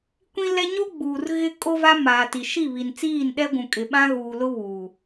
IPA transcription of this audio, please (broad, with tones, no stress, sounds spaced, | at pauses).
kʷ ĩ˦ l ɛ˦ ɲ o˦ ɡ͡b uː˨ r ɣ ɪ˦ kʼ o˦ v a˦ m aː˨ t i˨ ʃ i˦˨ β i˨ n t͡s iː˦˨ n ɗ ɛ˦ ɡʷ ũ˨ kʼ ɪ˨ ɓ ã˦ ɣ uː˨ l ʊ˦ β u˨